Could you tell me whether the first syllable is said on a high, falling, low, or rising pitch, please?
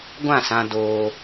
falling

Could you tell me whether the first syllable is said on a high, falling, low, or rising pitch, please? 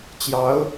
rising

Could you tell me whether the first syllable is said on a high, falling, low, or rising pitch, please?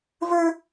high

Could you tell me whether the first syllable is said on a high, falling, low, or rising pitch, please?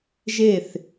falling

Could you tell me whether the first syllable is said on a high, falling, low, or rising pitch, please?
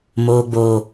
low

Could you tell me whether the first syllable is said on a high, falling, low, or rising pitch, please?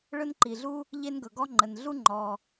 high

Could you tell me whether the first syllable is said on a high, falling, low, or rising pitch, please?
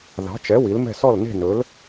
rising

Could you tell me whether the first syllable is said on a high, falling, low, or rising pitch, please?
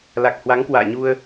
low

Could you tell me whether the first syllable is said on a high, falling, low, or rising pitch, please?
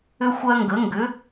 high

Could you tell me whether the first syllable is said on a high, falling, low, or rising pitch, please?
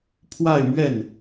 falling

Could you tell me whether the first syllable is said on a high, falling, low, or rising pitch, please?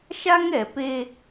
high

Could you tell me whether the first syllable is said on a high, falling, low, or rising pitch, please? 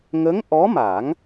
rising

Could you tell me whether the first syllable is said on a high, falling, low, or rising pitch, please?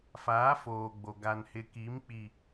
rising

